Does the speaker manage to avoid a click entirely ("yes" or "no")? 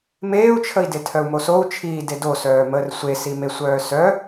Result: yes